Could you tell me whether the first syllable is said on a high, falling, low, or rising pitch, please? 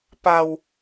low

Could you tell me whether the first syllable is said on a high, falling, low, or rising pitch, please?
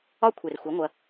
high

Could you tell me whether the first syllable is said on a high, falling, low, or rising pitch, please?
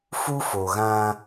high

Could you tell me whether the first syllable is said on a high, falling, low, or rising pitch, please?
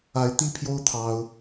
rising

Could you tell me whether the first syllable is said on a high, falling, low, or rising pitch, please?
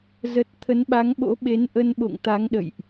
low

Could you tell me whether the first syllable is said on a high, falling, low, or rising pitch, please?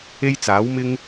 high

